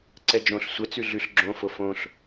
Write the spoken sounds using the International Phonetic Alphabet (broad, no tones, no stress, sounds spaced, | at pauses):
ǀ ɛ d͡ʒ õ ɬ sʷ ɛ t͡s ʉ ɮ ʉ ɬ ɡ͡ǁ õ f o f õ ɬ